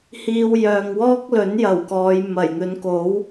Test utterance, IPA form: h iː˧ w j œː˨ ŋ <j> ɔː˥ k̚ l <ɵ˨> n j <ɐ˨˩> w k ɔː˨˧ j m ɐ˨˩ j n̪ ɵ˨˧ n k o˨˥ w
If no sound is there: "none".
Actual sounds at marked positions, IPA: w, ɵ˨˥, ɐ˨˩

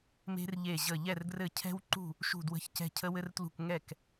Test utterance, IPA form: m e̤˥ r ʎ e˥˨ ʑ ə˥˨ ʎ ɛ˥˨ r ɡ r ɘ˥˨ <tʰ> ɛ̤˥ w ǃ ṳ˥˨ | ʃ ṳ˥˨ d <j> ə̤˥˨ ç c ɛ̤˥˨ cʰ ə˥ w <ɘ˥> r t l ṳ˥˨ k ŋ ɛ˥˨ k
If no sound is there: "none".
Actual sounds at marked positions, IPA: cʰ, w, ɘ˥

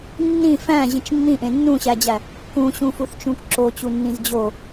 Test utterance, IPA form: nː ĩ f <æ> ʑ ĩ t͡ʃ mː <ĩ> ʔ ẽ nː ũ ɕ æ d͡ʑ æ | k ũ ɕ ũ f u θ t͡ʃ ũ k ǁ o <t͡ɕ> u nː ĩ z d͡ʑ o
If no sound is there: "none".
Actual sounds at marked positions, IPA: æ̃, ĩ, t͡ɕ

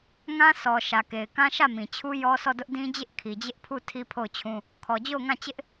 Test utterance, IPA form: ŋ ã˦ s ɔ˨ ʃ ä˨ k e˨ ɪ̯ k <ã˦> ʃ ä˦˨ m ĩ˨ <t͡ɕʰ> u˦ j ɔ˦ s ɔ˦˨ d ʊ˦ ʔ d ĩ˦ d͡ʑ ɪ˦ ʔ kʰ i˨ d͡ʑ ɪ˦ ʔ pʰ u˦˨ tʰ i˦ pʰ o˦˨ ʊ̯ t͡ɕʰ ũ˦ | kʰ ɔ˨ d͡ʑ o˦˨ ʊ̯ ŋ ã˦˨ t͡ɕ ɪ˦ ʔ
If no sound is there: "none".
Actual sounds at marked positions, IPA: ã˦, t͡ɕʰ

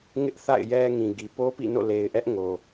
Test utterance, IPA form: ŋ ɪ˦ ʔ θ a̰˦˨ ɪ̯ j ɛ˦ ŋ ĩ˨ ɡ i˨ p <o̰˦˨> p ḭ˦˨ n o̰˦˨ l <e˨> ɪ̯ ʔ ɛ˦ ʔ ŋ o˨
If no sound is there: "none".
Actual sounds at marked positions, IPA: o˦, e˨

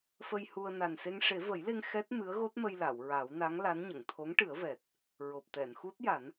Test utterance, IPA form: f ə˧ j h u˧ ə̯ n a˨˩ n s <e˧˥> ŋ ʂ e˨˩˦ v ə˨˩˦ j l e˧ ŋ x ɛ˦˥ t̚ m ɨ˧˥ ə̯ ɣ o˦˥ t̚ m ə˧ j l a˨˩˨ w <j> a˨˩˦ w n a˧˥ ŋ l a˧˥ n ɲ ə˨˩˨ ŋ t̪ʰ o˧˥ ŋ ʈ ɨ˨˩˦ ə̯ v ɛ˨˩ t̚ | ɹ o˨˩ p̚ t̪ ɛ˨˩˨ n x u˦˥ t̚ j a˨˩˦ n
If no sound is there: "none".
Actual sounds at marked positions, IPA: e˧, ɹ

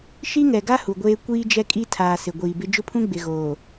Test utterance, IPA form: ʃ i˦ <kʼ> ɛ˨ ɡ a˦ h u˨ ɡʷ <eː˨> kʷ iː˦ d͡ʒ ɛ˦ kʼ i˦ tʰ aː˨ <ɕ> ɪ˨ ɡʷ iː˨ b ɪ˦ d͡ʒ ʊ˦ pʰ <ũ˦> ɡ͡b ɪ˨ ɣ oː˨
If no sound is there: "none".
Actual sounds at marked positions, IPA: ŋ, eː˦, s, ũ˦

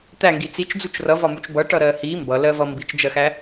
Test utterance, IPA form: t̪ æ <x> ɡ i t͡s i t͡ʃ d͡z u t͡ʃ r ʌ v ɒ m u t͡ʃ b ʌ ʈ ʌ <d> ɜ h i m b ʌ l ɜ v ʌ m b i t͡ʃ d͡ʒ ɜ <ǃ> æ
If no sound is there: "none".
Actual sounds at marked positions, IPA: ŋ, ɾ, x

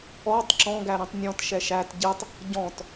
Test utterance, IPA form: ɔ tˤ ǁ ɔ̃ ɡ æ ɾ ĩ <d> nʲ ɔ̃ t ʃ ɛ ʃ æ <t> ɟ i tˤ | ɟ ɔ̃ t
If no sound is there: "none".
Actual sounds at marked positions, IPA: tˤ, t

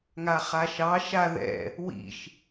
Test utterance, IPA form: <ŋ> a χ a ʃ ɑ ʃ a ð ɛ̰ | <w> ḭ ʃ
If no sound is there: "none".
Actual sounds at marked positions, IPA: ŋ, w

